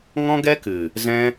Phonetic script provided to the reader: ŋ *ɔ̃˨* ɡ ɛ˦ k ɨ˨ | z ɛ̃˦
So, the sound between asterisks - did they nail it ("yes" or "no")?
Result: no